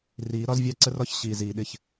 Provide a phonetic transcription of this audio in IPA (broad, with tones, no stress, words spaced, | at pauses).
riː˨˦ ɾɒ˦zvʲɑ˦ ǀə˦rɒ˦ç ɕiː˨ziː˨ɗɪ˦˨ç